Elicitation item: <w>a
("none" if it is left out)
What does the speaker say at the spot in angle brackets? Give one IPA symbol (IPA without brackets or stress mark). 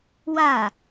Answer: w